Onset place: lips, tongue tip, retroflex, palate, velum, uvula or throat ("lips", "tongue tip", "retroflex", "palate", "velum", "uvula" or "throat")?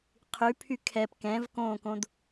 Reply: uvula